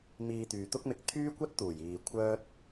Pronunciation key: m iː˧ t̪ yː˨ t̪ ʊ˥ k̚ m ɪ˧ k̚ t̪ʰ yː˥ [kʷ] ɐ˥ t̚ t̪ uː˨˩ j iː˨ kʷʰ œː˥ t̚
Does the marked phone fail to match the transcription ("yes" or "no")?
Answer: no